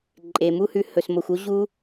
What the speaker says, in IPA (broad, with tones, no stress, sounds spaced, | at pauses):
ǃʼ e˨ m u˦ h ʉ˧ h ɵ˨ s m o˨ xʷ o˦ ʑ u˦